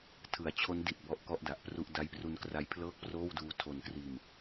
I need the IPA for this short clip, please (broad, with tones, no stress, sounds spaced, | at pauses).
tʰ ɯ˩˦ a̯ t͡ɕʰ o˦˥ n d i˨˩ t̚ b ɔ˥˩ ʔ k ɔ˥˩ ʔ d a˨˩ ʔ p r u˥˩ ʔ d a˦˥ j p r u˦˥ n k r a˦˥ j pʰ l ɤː˥˩ k̚ p r oː˥˩ w d uː˦˥ tʰ o˧ n k r iː˧ m